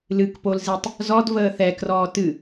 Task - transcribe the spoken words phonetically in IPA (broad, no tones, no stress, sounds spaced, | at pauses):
l ɨ k p o l z i tˤ | z ɔ d v əː θ ɛ k r ɔː t ɨ